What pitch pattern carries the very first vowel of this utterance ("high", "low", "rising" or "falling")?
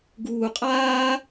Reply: high